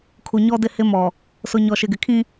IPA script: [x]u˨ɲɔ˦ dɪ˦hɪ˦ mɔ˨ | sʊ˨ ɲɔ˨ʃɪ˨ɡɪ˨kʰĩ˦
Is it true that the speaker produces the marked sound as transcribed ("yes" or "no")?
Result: no